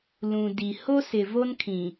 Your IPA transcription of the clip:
l ũ˨ d i˨ h o˦ s ɪ˨ v o˦ n kʰ ĩ˨

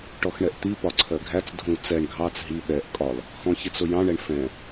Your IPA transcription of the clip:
ʈ ɔ x ɳ ɛ ʔ t̪ i p ɒ ǀʰ ɜ ɡʱ æ t͡s dʱ ũ l t͡s ɛ ɳ ɡʱ ɑ t͡s ɦ i ɓ ɛ ʔ kʼ ɒ l | x ɔ̃ ç i t͡s ʊ j ɑ̃ ɳ ɛ ɳ f ɛ̃

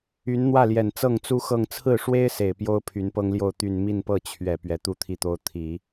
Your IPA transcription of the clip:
y˧˥ n n̪ w ä˥˩ l j ɛ˨˩ n t͡s ɤ˥˩ ŋ t͡s u˥ x ɤ˥˧ ŋ t͡sʰ ɹ̩˥˩ ʂ w e˥ ɪ̯ s e˨˩ ɪ̯ p j o˥ ʊ̯ pʰ y˧˥ n p ɤ˥ ŋ l j o˥˧ ʊ̯ t̪ y˥˧ n m i˥˧ n p ɤ˥˩ t͡ɕʰ ɥ ɛ˨˩ p ɥ ɛ˧˥ t̪ u˥ t̪ʰ i˥˩ t̪ o˥ ʊ̯ t̪ʰ i˨˩˦

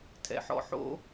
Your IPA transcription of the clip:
tʰ ɛ̰˧ ħ ɔ̰˦ ħ o̰˦

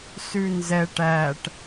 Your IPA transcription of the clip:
s ʉ n z ɛ ʈ æ ʈ

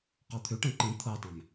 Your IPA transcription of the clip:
q ɔ t̪ʰ ʉ ʈ ɛ̃ ǃ ĩ t̪ʰ ɤ tˤ ɛ̃ m

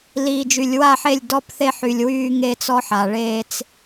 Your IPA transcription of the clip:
l iː˨ d͡ʒ y˨ lʲ w a˦˨ ħ e˦˨ lʲ d ɔ˦ p θ e˦ ħ y˨ lʲ w yː˦ ŋ e˦ t͡s ɔ˦ ħ a˨ ɭ eː˦ t͡s

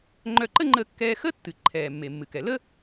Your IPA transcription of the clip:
ŋ͡ǃ œ˧ ǃ ə˥ ŋ͡ǃ ə˧ kː ɛː˧ x əː˥ tː ɨ˩ ǃʰ ɛː˩ mː e˩ mː ɨ˩ k ɛ˩ l ə˥

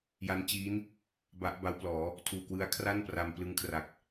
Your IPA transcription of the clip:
j a˦˥ n t͡ɕ iː˦˥ n | b a˦˥ ʔ b a˦˥ w p l ɔː˩˦ | tʰ uː˨˩ k w ɯ˧ a̯ kʰ r a˥˩ n p r a˧ m p l ɯ˧ ŋ kʰ r a˨˩ k̚

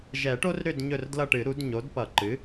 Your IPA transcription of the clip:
ʒ ɛ˨˩˦ ʈ o˦ r ɾ ʏ˦˨ d ɲ ɵ˦˨ r d l ʌ˦˨ ʈ ɨ˨˩˦ ɾ u˩˥ d ɲ o˩˥ d p ʌ˨˩˦ ǃ ɨ˩˥

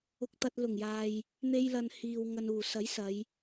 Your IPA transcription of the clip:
ʊ˧ k̚ t̪ ɐ˧ t̚ l ʊ˨˩ ŋ j aː˨ j | n̪ e˧ j l ɐ˨ n h iː˨ w ŋ ɐ˨ n uː˨˩ s ɐ˨˥ j s ɐ˨˧ j

